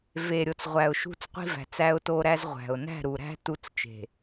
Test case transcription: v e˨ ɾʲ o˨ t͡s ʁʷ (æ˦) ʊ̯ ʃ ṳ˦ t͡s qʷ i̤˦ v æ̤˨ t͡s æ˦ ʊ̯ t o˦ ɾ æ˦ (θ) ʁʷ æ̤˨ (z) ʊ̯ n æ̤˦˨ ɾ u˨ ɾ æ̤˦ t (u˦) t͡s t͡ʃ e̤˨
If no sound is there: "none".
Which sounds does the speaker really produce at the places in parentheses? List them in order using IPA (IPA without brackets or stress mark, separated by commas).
æ˨, z, none, u˦